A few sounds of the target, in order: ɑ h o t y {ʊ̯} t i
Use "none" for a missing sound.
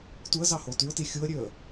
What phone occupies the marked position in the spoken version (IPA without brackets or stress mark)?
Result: ʊ̯